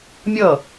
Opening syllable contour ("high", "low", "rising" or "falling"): falling